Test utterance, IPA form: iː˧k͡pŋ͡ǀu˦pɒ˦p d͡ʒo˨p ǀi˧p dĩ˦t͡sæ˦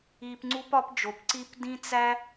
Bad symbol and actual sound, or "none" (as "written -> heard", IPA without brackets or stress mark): k͡p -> p